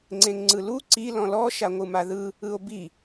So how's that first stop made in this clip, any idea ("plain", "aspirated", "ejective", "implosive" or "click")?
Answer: click